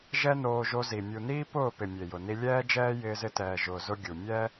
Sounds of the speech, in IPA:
ʒɛ˦noː˧ʒo˧zi˨ mʲu˨niː˦ pʊː˦˨pɪ˨ mʲe˨jʊ˨ni˧ lʲɛː˦d͡ʒɛː˦jɪː˧zɪ˧ tɛː˨ʒʊː˨zʊ˧ ɡʲu˨ mʲɛ˦

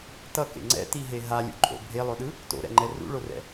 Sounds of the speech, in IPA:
tʌkḛ ŋ͡ǀɛ̰tiɦe ɦalʲṵǃʼo̰ bʱelˠoɗɯ | to̰ɾɛ̰ŋ͡ǃɛ rṵɭorɛ̰

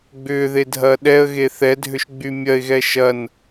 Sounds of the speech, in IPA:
ɡ͡bʏːðedʱɐː ɗɛə̯ɣe θɛdʱʏʃɡ͡by mʲɐɪ̯ɣɛ ʃɐn

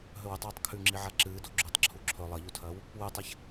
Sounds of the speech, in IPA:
ɦɵwʉtˤwɨtˤ kʰʉŋ͡ǁiʕa ǁɨːdo ɡ͡ǁuːtˤǁʰuǁʰɵ lˠɐʎutʰɐːw | wʉtˤaç

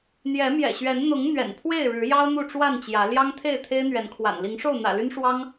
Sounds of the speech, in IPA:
n̪jɛ˨˦mjɛ̰˨˩ɕɥɛ˨˦n n̪ʊ˨˦ŋ n̪ɥɛ̰˨˩npʰwe˥˨ɪ̯ɻɻ̩˨˦jɑ˦ʊ̯ n̪u˥˨ʈ͡ʂwa˥˨nt͡ɕjä˨˦ ljɑ˦ŋt̪ʰe˥˨ɪ̯ t̪ʰe˦ɪ̯n̪ɥɛ˨˦nkʰwa̰˨˩n li˨˦ŋʂo˥˨ʊ̯ n̪ä̰˨˩ly˦nʂwɑ˦ŋ

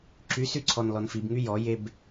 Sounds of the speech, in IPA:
ǁysyǀʰɔn lɔnfibŋy jɔjeb

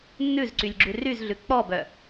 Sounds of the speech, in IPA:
nːʉzǀylʲɡ͡ǁʉ ryzɮʉ k͡pɔbœ

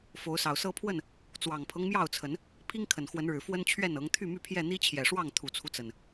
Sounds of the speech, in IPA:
fo˨˦ʊ̯sɑ˨˩ʊ̯sɤ˦pʰwə˥˨n | t͡swɑ˨˩ŋpʰɤ˦ŋmjɑ˥˨ʊ̯t͡sʰə˨˦n | pʰi˦ŋkʰə˨˩nxwə˨˦nɻɻ̩˨˩ fwə˦nt͡ɕʰɥɛ˥˨nɤ˨˦ŋ t̪ʰy˥˨my˥˨pʰjɛ˥˨ n̪i˦t͡ɕʰjɛ˨˩ʂwɑ˥˨ŋ t̪ʰu˨˩t͡sʰu˦t͡sə˨˩n

